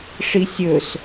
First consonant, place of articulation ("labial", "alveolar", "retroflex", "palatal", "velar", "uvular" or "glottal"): retroflex